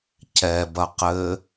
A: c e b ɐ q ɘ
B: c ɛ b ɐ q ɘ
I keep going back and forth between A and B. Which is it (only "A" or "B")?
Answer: B